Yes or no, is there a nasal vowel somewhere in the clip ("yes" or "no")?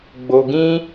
yes